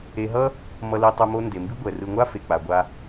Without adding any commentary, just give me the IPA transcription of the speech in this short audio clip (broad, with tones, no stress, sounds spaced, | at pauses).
e˨ ɦ ʌ˦ | m ʌ˨ l i˨ tˤ u˨ m o˦ n d e˩ m b i˥ ɡʷ ɛ˩ r ɯ˨ ŋʷ a˥ f e˩ k͡p a˩ ɡʷ a˨